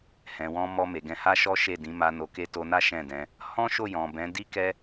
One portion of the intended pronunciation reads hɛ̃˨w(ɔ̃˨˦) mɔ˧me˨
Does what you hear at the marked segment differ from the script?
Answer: yes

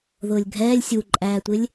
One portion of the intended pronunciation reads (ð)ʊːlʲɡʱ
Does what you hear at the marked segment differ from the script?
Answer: no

